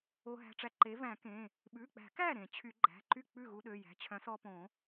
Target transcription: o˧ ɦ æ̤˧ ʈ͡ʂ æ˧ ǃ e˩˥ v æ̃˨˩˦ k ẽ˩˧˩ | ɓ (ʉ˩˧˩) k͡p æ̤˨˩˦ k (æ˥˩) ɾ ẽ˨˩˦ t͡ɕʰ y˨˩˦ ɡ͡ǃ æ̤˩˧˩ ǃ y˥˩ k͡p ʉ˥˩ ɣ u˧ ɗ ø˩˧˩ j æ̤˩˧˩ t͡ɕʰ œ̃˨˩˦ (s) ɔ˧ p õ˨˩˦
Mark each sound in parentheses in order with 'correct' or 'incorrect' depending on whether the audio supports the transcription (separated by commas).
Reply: correct, correct, correct